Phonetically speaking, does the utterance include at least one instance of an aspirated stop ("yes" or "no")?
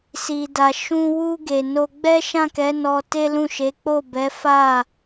no